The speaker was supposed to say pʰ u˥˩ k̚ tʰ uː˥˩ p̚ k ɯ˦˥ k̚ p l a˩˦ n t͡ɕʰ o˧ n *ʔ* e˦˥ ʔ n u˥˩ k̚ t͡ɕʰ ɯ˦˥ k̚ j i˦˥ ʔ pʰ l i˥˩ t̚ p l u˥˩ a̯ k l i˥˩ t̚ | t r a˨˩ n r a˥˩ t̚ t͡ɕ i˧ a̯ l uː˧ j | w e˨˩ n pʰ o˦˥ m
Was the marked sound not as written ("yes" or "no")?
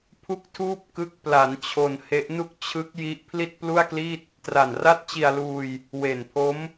yes